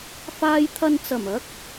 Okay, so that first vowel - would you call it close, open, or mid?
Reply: open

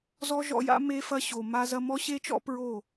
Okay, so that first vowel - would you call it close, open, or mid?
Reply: mid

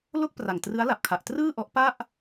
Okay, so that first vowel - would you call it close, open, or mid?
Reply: mid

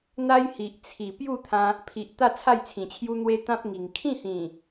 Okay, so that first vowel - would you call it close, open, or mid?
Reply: open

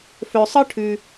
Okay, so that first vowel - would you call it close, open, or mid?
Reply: mid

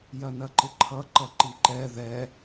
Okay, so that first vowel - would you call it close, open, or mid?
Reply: open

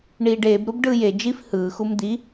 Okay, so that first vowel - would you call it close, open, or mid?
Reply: close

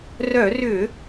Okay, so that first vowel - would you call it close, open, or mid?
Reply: mid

